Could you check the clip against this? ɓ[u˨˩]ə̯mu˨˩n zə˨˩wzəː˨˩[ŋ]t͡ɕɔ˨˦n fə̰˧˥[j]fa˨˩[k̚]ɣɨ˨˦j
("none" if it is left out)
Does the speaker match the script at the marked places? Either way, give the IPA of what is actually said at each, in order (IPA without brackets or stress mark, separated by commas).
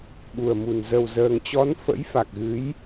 u˨˩, ŋ, j, k̚